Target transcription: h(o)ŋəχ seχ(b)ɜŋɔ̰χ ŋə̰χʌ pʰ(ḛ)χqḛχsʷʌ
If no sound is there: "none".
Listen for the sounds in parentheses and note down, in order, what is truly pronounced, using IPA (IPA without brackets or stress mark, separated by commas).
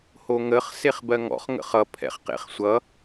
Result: o, b, ɛ̰